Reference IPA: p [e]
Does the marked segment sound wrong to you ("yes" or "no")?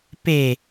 no